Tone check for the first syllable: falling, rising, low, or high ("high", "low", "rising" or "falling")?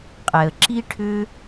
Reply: low